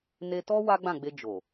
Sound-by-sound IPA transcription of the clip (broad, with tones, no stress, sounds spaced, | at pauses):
n e˧ t ɔ˦ w a˦ ɡ͡b ã˦˨ ɡ͡b e˧ d͡ʒ o˨